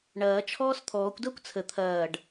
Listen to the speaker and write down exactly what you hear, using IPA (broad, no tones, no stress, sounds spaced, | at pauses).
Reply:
ɳ ɐː t͡ʃʰ ɔː s t̪ʰ ɔː kʷ d ɐː kʷ t͡sʰ ə t̪ʰ ɐː ɖ